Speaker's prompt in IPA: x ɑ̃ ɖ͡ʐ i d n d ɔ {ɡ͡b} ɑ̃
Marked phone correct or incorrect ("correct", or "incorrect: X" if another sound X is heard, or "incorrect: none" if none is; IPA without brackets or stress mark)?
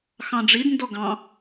incorrect: ɡ